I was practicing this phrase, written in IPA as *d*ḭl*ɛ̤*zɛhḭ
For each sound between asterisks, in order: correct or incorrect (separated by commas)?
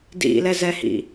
correct, incorrect